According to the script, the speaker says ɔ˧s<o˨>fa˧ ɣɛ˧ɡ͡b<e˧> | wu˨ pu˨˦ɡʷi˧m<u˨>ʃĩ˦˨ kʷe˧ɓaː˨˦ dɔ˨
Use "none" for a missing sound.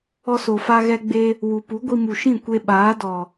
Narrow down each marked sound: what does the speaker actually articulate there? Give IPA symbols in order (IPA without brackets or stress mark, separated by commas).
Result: o˨, e˧, u˨